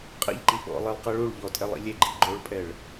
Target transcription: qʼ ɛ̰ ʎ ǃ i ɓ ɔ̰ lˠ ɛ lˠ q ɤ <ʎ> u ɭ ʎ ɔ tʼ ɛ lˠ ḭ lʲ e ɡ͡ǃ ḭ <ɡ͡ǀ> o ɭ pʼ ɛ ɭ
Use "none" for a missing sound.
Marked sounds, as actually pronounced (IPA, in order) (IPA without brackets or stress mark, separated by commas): ɭ, ɡ͡ǃ